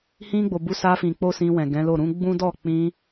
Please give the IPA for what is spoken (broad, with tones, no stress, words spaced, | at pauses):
hĩ˧ɡ͡bo˨ bu˨˦sa˧fĩ˨k͡po˧ sĩ˧wɛ̃˨ɡɛ̃˨˦lo˦˨ ɾũ˨˦ ɡ͡bũ˦ dɔ˦˨k͡pĩ˧